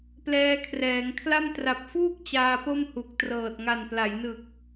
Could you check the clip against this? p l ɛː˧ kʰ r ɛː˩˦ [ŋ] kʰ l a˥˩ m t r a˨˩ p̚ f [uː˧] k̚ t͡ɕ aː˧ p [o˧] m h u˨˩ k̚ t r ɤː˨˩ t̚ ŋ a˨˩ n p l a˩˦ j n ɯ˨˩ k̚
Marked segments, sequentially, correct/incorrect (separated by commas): correct, incorrect, incorrect